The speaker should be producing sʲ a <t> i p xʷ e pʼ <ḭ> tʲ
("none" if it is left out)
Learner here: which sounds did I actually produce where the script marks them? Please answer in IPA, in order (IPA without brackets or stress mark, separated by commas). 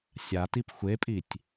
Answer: t, i